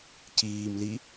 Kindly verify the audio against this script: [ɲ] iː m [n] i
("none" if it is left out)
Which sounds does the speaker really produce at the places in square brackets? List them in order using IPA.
c, l

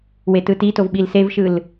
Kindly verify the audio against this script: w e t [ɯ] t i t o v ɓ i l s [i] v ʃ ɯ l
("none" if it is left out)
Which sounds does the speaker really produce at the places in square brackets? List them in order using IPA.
ɯ, e

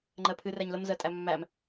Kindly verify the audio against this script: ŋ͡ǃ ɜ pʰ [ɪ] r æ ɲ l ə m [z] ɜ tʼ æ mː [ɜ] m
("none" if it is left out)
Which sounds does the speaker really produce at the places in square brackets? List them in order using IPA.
ɨ, z, æ

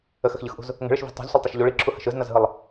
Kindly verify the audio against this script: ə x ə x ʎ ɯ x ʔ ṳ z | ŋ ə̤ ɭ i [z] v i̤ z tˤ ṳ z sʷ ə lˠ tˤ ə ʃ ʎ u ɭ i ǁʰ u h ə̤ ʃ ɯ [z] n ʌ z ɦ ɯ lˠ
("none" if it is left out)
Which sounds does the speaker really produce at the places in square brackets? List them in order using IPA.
ʃ, z

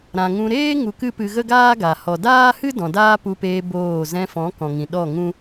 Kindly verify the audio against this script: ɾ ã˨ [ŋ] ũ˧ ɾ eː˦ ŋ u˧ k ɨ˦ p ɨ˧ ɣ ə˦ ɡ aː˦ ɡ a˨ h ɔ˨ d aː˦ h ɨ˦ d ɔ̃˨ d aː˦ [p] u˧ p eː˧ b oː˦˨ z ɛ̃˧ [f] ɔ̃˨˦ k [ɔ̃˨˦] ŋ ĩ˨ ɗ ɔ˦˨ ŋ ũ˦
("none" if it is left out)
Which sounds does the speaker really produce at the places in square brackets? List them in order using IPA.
ŋ, p, f, ɔ̃˨

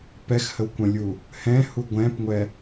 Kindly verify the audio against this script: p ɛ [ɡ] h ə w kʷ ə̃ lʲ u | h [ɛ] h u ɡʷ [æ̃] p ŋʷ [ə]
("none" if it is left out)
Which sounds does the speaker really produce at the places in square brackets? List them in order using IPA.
x, ɛ̃, ɛ̃, ɛ

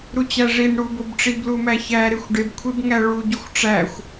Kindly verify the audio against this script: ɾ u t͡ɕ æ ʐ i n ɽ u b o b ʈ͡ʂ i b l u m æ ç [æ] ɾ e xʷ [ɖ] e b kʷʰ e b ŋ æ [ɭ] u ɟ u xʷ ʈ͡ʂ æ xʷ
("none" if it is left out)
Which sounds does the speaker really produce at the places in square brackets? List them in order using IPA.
æ, ɖ, ɭ

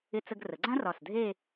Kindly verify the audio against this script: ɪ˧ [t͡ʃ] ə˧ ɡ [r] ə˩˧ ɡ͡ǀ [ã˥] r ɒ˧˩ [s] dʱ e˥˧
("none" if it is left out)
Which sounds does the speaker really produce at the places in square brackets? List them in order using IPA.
t͡s, r, ã˥, s

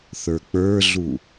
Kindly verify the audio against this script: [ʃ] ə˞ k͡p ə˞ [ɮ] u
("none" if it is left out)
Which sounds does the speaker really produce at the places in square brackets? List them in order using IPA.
θ, ɮ

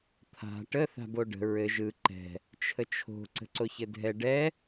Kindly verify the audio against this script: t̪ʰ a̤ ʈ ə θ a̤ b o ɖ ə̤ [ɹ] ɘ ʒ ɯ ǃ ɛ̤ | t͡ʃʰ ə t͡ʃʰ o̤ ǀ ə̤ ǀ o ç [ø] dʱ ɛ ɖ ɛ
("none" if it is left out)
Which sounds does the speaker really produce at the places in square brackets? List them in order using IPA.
ɹ, ɘ

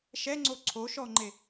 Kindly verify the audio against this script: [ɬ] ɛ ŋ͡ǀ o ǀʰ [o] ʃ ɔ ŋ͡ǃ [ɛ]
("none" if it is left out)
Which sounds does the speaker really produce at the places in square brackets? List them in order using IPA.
ʃ, o, e

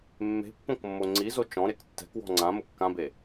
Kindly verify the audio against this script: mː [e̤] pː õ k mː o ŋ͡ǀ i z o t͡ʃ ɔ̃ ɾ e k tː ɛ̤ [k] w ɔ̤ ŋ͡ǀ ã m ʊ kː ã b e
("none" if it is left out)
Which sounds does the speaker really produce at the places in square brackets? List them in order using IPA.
e̤, k

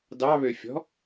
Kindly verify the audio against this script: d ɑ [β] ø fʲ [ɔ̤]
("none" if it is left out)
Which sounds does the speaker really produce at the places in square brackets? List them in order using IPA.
β, ɔ̤

